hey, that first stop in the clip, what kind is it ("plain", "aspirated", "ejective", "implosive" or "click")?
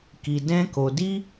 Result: plain